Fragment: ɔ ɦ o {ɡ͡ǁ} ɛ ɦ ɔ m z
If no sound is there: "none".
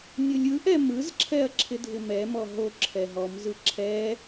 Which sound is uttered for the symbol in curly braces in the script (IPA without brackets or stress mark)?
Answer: ǁʰ